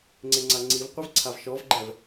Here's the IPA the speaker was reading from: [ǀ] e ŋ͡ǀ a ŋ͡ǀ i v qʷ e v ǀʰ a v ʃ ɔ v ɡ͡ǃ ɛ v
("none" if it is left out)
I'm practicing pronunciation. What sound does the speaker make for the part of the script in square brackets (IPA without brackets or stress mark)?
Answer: ŋ͡ǀ